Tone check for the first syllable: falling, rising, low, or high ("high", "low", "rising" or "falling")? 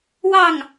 falling